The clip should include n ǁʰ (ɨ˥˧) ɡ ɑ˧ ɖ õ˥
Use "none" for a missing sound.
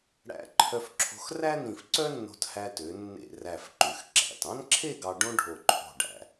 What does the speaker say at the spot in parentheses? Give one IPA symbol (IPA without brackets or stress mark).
e˥˧